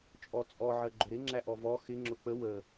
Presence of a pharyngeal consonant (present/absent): present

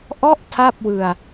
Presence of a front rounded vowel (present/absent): absent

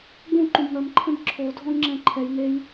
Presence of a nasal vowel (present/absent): present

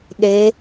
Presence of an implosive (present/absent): present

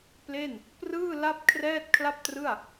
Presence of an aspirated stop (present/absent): present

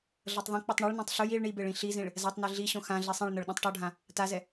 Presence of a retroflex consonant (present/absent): present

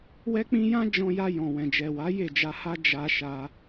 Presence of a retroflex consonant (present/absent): absent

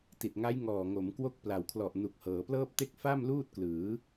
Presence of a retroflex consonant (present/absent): absent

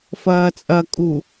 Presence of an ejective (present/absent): present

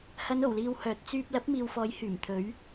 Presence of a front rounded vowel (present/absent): present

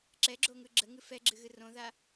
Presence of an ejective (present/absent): absent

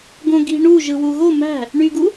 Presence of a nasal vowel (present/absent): present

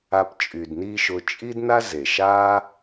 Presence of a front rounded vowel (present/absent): present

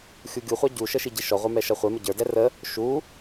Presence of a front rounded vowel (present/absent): absent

